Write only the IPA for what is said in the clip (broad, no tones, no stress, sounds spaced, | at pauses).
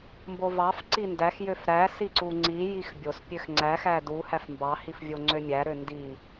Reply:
m b o v ɑ f ǀ i n d æ x j ø f ɾ æ s i ǀ u ŋ͡ǀ i j i x bʲ o s pʲ ø x ŋ͡ǀ æ x æ d u h æ f m b ɑ h i f vʲ o ŋ͡ǀ ø mʲ æ ɾ ø n d i